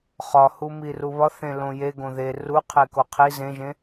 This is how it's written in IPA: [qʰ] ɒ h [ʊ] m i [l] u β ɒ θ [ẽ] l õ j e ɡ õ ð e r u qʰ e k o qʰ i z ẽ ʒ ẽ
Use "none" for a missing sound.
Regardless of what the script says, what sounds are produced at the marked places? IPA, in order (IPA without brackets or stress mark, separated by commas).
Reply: χ, u, r, ẽ